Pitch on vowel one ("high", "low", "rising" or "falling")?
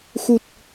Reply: low